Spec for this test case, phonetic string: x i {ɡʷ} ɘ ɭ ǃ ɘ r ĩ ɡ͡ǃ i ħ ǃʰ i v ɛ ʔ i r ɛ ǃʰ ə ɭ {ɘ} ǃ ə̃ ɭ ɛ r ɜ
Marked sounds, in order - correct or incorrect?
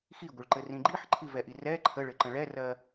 correct, correct

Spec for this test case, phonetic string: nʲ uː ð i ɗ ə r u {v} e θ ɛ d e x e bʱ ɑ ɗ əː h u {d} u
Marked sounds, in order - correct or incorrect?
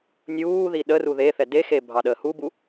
incorrect: ð, incorrect: b

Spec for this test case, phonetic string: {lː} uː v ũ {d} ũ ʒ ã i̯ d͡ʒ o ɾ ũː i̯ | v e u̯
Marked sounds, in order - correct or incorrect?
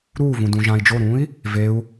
incorrect: ɾ, correct

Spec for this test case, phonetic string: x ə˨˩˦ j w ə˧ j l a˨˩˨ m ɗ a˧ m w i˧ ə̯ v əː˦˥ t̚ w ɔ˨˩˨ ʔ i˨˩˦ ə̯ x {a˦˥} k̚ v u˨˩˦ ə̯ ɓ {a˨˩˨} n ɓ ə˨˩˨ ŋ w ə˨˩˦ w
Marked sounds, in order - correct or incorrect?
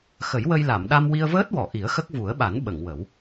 incorrect: ə˦˥, incorrect: a˨˩˦

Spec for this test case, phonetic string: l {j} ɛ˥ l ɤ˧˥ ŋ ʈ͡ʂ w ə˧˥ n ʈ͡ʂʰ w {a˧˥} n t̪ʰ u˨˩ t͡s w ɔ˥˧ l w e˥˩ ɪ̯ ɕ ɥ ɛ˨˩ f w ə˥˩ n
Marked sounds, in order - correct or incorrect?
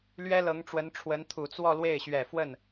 incorrect: ɥ, incorrect: ə˧˥

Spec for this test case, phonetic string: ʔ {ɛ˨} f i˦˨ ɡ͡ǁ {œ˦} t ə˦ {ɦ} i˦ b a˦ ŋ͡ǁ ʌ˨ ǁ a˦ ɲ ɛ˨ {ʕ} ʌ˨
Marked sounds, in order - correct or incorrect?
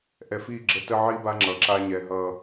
correct, incorrect: ə˦, incorrect: ʕ, incorrect: ɦ

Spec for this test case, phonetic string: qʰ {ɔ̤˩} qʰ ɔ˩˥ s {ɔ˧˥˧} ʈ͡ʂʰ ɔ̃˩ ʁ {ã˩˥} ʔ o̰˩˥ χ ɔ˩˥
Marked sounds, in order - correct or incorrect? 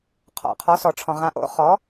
incorrect: ɔ̰˩, incorrect: ɔ˩, correct

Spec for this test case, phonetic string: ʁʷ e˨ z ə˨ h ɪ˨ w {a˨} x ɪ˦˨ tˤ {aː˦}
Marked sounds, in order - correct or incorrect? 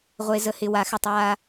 correct, correct

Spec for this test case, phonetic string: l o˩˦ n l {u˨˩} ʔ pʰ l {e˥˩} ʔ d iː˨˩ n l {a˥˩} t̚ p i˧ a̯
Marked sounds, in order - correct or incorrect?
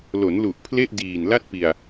correct, correct, correct

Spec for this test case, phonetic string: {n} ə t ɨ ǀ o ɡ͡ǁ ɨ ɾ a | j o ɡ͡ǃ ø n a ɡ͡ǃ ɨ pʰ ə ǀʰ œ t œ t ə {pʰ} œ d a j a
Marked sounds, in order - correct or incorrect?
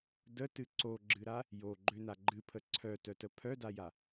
incorrect: d, correct

